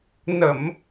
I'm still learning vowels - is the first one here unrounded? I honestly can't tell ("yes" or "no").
yes